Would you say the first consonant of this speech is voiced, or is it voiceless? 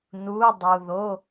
voiced